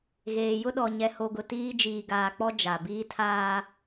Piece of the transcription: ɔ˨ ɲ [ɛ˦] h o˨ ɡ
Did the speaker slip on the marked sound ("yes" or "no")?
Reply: yes